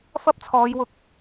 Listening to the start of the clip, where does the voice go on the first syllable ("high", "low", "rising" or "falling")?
high